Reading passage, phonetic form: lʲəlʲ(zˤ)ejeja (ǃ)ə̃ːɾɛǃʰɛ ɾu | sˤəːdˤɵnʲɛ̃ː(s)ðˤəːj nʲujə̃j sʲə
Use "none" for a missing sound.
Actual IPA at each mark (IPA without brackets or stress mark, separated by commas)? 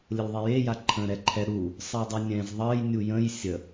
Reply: ðˤ, ǃʰ, z